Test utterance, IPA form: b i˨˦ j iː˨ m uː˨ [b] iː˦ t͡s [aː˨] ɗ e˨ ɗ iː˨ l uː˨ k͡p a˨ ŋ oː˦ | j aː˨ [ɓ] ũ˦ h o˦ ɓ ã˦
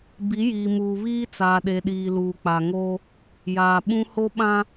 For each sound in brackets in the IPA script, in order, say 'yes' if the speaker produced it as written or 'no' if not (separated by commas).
no, yes, yes